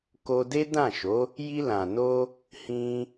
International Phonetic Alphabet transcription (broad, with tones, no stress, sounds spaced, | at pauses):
k o˧ d e˦ d ã˦˨ ʃ o˨˦ | j i˧ l ã˨ n o˧ | h ĩ˧